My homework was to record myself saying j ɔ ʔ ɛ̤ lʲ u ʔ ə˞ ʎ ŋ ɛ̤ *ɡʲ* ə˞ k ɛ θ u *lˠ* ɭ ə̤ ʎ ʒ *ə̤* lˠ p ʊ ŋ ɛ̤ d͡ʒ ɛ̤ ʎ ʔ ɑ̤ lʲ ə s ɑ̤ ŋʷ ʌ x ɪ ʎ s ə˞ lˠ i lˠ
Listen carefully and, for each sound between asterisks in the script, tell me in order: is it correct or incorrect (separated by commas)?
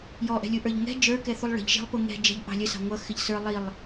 incorrect, correct, incorrect